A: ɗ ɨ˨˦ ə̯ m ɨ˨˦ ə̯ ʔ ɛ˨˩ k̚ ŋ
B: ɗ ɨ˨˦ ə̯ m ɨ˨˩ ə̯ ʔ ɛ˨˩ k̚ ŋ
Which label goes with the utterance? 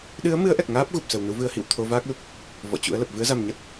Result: A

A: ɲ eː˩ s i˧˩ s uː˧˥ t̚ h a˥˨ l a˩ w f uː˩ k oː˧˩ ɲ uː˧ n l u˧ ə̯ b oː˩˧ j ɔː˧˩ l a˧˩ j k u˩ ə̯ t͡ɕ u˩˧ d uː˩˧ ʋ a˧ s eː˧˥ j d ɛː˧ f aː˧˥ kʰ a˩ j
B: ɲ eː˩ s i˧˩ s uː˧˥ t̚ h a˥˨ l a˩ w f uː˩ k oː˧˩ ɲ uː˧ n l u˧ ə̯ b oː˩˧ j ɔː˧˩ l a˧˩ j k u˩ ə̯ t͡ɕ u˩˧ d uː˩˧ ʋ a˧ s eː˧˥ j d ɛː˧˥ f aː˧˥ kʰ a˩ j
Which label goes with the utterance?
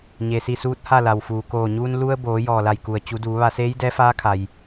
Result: B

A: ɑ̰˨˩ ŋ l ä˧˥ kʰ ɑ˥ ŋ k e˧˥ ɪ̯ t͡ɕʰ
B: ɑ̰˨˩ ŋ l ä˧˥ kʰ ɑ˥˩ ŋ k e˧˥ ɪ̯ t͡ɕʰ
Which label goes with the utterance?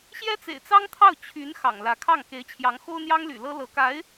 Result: B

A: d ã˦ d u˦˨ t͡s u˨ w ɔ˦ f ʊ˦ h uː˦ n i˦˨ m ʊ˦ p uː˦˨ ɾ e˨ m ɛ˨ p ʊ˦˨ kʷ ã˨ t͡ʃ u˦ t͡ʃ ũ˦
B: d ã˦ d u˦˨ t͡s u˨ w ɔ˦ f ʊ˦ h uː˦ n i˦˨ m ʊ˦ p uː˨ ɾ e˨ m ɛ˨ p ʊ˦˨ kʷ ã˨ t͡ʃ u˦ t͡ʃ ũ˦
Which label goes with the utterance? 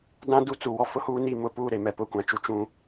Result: A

